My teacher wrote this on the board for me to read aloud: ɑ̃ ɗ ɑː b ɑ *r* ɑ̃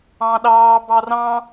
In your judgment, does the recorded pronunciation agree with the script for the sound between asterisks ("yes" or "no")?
yes